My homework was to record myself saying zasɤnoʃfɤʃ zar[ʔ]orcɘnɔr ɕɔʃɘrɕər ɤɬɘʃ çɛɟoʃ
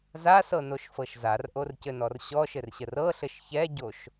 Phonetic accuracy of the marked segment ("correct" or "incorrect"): correct